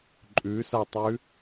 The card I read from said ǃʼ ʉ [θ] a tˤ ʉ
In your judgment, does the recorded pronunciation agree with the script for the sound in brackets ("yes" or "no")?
no